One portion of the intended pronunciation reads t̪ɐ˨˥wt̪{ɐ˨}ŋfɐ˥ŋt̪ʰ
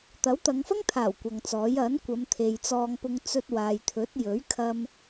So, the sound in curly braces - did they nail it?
no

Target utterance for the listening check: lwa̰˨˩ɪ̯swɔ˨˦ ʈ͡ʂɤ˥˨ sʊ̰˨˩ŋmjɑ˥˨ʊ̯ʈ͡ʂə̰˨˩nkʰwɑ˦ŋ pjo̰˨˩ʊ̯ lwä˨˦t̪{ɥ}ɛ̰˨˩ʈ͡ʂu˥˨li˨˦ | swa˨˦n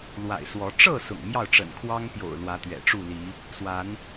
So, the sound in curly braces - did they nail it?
yes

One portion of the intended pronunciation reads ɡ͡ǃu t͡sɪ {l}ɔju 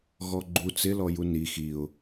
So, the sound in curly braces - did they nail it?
yes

